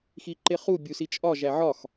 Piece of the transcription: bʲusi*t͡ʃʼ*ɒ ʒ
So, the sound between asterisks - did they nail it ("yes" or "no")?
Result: yes